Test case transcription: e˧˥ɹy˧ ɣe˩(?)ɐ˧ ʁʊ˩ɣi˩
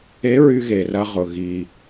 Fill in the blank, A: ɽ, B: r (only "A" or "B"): B